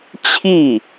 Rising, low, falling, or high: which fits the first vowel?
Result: falling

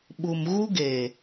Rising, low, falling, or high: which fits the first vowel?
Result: low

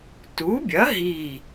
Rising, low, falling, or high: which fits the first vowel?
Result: rising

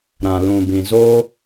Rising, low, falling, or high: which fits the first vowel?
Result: low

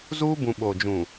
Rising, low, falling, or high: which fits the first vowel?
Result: high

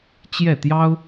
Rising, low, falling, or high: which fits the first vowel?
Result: falling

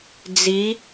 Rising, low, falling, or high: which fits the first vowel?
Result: rising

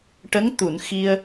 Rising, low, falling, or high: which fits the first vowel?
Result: rising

